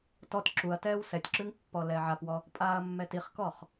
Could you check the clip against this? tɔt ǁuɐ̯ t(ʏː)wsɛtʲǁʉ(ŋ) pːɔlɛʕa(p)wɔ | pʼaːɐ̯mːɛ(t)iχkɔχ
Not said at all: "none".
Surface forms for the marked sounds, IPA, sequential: ɛː, ŋ, p, t

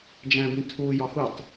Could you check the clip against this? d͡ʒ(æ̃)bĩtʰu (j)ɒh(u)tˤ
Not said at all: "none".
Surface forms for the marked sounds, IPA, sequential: æ̃, j, u

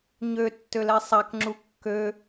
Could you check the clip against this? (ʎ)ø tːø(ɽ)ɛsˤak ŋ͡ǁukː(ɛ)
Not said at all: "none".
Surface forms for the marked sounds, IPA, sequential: ɲ, l, ø

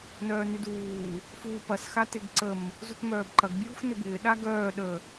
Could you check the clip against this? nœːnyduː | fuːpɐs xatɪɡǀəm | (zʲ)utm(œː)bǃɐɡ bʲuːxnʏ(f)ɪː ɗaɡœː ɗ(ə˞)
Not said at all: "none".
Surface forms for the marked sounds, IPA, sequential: z, œː, b, ə

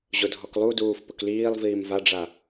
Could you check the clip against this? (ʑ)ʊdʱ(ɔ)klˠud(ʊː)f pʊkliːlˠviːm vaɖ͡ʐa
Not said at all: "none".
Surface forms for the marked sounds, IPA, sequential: ʑ, ɔ, uː

